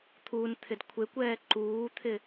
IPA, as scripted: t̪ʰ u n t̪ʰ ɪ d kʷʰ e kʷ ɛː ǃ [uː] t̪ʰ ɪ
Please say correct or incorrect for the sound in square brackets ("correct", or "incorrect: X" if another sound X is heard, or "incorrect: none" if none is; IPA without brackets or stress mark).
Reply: correct